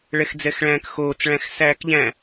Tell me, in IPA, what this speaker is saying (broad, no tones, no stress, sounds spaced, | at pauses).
ɭ ɛ x d͡z ɛ x ɭ æ̃ː k x oː t͡s ɭ æ̃ x s æː k ʎ æ̃